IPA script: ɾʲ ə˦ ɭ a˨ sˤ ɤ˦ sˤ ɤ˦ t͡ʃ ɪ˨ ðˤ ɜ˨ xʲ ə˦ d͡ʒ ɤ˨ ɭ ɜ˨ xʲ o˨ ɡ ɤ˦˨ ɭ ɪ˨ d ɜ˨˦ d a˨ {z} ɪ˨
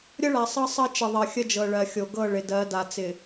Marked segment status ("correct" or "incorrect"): incorrect